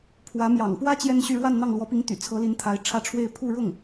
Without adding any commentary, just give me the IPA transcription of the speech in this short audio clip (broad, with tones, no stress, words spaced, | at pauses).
pʰwä˧˥ mjɑ̰˨˩ŋpwä˥ t͡ɕjɛ˥nɕy˥˧ ɻwa˥˧nn̪ɑ˥˩ŋlwɔ˧˥pi˧˥ŋ t̪y̰˨˩ t͡sʰɤ˧˥li˧˥n t̪ʰa˧˥ɪ̯ʈ͡ʂʰä˥˧ʈ͡ʂʰwe˥˧ɪ̯ pʰu˥˧ɻʊ˥˩ŋ